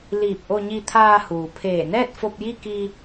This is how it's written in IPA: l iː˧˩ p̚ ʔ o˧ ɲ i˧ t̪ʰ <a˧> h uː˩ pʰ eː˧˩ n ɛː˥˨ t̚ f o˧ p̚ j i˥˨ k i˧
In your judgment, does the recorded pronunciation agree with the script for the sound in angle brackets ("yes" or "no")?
no